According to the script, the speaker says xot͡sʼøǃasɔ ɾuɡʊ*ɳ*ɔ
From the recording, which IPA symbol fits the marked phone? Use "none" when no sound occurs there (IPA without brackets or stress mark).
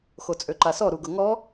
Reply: ŋ